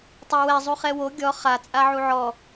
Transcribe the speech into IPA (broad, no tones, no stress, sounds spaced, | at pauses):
tˤ o w ɛ zˤ u χ ɛ w o ɡʲ ɔ χ a t͡sʼ a ʕ u ʕ ɔ